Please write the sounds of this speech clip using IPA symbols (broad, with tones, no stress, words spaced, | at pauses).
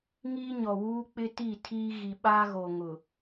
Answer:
ŋiː˦ɲɔ˨wuː˦ k͡pɪ˦ti˦˨ tʰiː˦ɣi˨ ɓaː˦ɣo˨ŋʊ˨